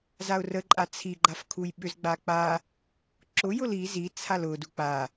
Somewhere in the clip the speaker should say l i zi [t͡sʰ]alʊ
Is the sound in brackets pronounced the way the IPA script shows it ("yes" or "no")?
yes